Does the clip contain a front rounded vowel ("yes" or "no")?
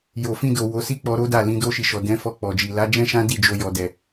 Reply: no